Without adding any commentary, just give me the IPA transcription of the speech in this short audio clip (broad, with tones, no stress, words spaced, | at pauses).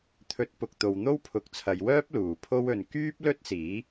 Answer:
t̪ʰɵ˨˥t̚ pʊ˨k̚t̪o˨w n̪o˥wpʰʊ˨˥k̚t͡sʰɐ˨˧jwœː˥p̚ luː˨˩pʰo˥wɵ˨n kyː˥p̚lɵ˥t̚siː˨˥